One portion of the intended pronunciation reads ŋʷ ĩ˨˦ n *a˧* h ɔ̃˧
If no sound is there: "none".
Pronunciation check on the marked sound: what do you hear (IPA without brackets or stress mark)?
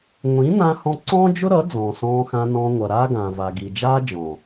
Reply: ã˧